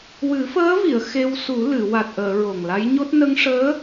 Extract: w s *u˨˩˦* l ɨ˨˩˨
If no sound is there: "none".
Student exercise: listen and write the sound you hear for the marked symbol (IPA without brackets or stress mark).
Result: u˨˩˦